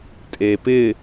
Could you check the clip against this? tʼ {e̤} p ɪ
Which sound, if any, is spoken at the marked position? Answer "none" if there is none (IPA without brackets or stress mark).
e